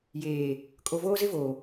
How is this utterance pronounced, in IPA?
j eː˨ | kʼ o˨ v oː˦ z ɪ˦ v oː˨

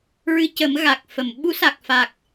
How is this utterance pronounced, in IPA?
ɹ ɨ˧ c ə˨˩˦ m ɣ a˨˩ k̚ f ə˨˩˨ m ɓ u˧˥ s a˨˩ k̚ f a˨˩ k̚

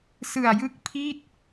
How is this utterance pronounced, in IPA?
s ɯ˨˩ a̯ j ɯ˥˩ k̚ pʰ i˥˩ t̚

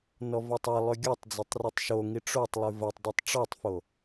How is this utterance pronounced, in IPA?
n ɔ v ɔ tˤ a lˠ ʏ ɡʲ ɔ tˤ d͡z e tˤ r y tˤ ʃ o ŋ i ʈ͡ʂ o tˤ lˠ y v ɐ tˤ dˤ o tˤ ʈ͡ʂ ɔ tˤ f o

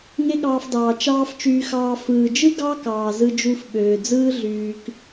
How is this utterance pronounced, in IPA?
ŋ e˦ ɠ ɑː˧ f d ɑː˨ t͡ʃ ɑː˧ f t͡ʃ yː˧ x ɑː˧ f ɯː˨ d͡ʒ ɯ˦ ɡ ɑ˦ k ɑː˨ z ɯ˧ d͡ʒ u˧ f ɓ øː˨ d͡z ɯː˦ ɮ yː˧ k

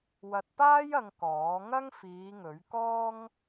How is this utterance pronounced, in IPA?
w ɐ˧ t̚ p aː˥ j ɐ˧ ŋ k ɔː˨˥ ŋ ɐ˥ ŋ f iː˨˧ ŋ ɵ˨˥ ɥ k ɔː˥ ŋ

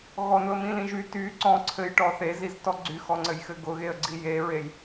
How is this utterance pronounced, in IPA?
ɣ ɔ n ʊ ə̯ m ĩ l ĩ ʒ y t y ǀ ɔ̃ ǀʰ ɘ j ʈ ɔ θ e z i z t ɔ ɡ͡ǀ y x ɔ ŋ͡ǀ ɘ j x ɘ ɡ ʊ ɣ e ə̯ ɡ͡ǀ i j e ɹ e j

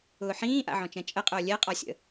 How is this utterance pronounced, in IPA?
ʊː ħ ĩː ʔ a̰ ʕ ɔ̃ t͡ʃ ɛ̃ t͡ʃʼ ə qʼ ʊː lʲ ɛ qʼ ɔ sʲ ə̰

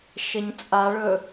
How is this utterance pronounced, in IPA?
ʃ ə ɲ t͡sʼ a ɭ ɵ

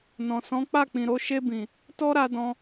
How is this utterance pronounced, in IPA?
n ɔ̃˨ s ɔ̃˨˦ k͡p a˦˨ k͡p ĩ˨ ɾ o˧ ʃ e˧ b ĩ˨ | t ɔ˦ ɾ a˧ d ɔ̃˧

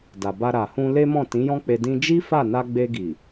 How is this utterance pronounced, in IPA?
d a˨ b a˧ ɾ a˨ h ũ˧ l e˦ m ɔ̃˦˨ t ĩ˨˦ j ɔ̃˦ k͡p e˧ d ĩ˧ d͡ʒ i˦ f a˦˨ n a˧ ɡ͡b e˧ ɡ i˨

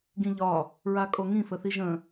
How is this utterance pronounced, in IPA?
ɡ ĩ ʎ ɒ | ɹ a kʼ o ŋ ĩ f ə θ i ʒ ə̃

